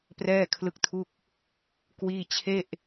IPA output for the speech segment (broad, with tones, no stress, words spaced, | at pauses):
prɛː˥˩kʰlɯ˥˩k̚tʰu˥˩k̚ | kwiː˥˩ t͡ɕʰe˥˩ʔ